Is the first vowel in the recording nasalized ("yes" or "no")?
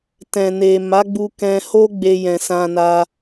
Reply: yes